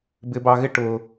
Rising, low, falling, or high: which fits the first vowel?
low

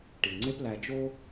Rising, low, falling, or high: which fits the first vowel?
low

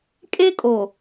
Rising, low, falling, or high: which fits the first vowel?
high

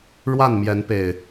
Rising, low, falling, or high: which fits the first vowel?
falling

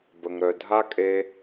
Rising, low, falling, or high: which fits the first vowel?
low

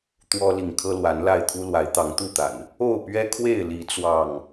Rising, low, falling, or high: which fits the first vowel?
high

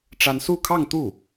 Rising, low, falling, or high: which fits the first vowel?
high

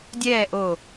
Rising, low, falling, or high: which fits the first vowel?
falling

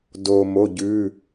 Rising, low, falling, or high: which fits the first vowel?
low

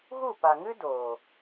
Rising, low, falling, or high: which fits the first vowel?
falling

